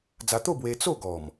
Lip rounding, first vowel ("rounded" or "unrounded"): unrounded